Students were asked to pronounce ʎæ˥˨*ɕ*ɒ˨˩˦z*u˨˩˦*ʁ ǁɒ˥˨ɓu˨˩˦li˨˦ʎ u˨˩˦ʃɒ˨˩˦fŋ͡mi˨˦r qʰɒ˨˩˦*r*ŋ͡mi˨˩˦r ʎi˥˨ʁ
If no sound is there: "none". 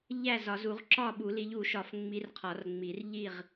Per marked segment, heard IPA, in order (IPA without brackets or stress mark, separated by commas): z, u˨˩˦, r